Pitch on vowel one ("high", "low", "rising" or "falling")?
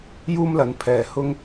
high